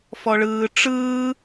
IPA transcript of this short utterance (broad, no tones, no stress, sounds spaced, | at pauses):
f ɔ ɭ ɯː ʈ͡ʂ ɯː